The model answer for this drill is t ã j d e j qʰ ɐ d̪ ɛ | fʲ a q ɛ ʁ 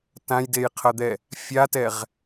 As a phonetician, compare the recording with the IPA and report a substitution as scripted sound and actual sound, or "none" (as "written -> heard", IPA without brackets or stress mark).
q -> t